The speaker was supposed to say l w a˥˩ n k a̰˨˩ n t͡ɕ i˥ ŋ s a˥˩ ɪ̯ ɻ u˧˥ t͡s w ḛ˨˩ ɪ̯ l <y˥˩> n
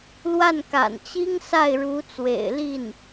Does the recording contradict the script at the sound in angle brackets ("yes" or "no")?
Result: yes